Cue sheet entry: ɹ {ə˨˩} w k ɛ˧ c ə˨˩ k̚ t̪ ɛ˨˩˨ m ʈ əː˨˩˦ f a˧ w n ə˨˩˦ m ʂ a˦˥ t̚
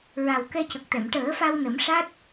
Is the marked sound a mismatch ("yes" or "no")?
yes